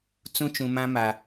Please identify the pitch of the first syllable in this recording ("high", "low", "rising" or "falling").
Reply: high